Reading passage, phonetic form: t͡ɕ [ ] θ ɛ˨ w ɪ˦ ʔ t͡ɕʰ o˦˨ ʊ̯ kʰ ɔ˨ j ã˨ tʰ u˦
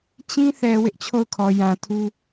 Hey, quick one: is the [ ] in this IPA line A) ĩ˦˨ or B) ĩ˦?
B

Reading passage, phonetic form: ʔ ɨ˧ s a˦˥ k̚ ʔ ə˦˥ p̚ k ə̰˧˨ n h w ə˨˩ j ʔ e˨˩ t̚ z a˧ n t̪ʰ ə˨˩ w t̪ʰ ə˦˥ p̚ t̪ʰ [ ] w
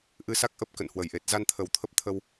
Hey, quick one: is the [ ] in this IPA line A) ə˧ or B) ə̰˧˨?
A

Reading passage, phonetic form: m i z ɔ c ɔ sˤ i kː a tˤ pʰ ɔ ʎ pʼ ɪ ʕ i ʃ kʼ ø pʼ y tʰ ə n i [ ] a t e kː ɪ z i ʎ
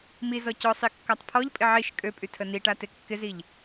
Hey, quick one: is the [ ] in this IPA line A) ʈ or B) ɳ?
A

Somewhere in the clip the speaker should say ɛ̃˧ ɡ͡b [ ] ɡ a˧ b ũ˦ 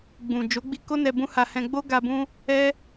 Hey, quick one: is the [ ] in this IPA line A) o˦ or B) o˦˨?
A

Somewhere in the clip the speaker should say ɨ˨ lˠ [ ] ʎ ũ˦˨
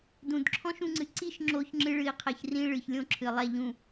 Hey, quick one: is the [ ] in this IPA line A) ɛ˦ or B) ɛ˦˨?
B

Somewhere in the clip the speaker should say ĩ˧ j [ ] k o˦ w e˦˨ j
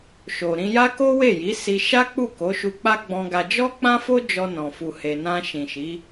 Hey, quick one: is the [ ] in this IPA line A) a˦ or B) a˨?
A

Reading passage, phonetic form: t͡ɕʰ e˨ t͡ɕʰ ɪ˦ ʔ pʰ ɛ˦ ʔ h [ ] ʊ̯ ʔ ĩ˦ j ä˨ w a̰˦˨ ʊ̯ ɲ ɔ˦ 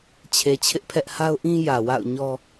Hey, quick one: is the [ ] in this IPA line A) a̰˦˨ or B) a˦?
B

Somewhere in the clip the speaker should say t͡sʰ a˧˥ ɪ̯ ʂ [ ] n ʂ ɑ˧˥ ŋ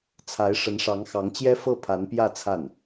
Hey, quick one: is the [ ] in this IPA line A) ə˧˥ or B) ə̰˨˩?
A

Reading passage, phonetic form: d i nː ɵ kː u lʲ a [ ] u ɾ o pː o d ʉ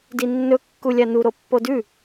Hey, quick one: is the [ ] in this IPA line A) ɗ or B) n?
B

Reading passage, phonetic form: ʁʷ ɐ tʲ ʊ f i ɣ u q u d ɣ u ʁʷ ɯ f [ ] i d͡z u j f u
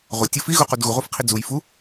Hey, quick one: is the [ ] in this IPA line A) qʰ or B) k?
A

